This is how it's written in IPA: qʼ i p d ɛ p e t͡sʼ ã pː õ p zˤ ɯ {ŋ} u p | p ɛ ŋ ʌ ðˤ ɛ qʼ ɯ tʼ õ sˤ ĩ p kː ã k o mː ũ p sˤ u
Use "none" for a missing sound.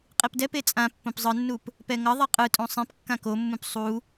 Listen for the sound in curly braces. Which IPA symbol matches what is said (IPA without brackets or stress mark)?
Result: nː